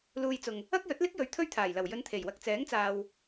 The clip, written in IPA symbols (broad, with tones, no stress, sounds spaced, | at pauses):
l uː˧ j t͡s ʊ˨ ŋ | ɐ˥ k̚ j ɵ˨˥ t̚ l ɪ˥ k̚ j ɵ˨˥ ɥ t̪ʰ ɵ˥ ɥ t̪ʰ aː˨˩ j l ɐ˨˩ w j ɵ˧ n t̪ʰ e˨˩ j w ɐ˧ k̚ t͡s ɛː˨˥ ŋ t͡s aː˨ w